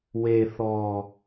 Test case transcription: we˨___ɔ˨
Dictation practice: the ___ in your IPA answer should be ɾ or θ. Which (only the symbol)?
θ